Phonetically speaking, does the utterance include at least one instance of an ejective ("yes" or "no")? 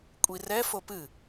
yes